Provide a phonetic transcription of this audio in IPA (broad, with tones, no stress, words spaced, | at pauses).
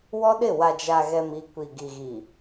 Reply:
wɔ˦ɗɪ˦˨ wa˨d͡ʒa˨ɣɛ˨m i˨ kʷi˨ ɡi˨ɣi˨